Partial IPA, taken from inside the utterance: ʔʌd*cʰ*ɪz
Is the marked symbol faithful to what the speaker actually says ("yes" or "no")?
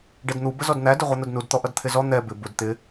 no